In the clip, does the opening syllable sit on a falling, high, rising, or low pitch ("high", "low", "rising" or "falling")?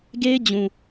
high